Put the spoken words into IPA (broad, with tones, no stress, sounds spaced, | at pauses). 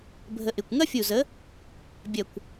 bʱ ə˧ ʔ ɪ˧˩ kʷ ŋ ɐ˥ fʲ u˧˩ z ə˨˥ | bʲ ɐ˧˩ kʷ